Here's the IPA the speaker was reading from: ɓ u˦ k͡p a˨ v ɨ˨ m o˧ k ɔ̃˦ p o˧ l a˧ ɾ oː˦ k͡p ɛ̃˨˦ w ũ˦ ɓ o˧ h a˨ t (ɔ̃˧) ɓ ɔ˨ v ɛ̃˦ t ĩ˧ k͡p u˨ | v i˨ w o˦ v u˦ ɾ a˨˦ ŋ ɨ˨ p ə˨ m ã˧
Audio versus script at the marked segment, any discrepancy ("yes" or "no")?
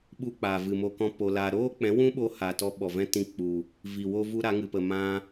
yes